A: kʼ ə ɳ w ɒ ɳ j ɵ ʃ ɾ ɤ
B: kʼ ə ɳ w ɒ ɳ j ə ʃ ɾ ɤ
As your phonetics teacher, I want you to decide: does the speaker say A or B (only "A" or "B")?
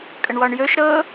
A